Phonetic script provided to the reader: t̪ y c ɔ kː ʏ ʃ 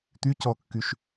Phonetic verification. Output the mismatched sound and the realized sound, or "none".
ʏ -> y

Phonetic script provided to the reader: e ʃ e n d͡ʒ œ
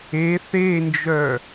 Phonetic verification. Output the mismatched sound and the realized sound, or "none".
ʃ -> θ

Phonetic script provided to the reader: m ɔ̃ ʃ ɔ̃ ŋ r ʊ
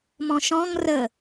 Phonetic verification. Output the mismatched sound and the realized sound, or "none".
ʊ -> ə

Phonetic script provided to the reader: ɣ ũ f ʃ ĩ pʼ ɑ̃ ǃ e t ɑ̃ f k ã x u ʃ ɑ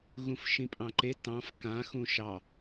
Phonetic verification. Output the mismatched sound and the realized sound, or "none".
u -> ũ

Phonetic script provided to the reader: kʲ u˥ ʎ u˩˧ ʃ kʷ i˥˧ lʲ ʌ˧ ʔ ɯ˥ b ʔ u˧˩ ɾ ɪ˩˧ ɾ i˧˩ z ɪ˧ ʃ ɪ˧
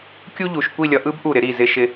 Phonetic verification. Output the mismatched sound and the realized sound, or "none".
none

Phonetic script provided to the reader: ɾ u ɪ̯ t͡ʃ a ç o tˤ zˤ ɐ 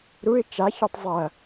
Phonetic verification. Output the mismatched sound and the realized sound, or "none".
none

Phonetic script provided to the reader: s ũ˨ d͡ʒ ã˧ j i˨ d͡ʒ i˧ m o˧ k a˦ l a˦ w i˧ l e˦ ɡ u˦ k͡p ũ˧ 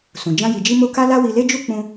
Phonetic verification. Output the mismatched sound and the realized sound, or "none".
ɡ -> d͡ʒ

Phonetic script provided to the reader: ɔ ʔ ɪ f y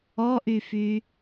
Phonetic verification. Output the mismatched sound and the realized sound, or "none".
ɪ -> y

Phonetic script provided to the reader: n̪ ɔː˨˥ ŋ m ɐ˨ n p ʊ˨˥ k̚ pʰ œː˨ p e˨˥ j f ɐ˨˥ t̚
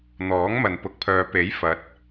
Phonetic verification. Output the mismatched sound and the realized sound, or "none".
none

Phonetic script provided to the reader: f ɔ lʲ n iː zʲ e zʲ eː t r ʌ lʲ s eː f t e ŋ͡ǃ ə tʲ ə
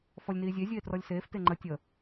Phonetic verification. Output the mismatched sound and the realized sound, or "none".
ʌ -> ɔ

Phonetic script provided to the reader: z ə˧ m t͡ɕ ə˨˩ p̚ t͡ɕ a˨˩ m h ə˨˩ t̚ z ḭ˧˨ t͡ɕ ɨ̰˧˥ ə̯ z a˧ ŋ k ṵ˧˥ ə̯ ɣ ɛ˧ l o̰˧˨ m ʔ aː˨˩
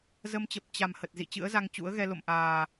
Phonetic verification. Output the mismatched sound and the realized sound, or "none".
k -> t͡ɕ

